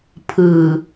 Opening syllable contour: low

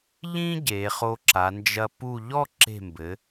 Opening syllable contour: high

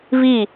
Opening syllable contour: falling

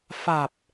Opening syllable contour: low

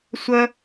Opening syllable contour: high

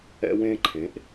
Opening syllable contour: high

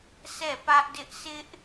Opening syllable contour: falling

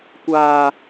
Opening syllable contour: high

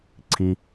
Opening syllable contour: low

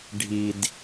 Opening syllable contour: low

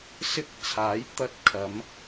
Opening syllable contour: high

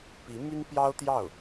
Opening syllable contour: rising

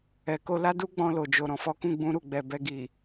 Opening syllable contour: low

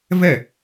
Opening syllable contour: falling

